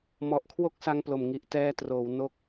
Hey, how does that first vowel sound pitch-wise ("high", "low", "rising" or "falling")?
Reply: low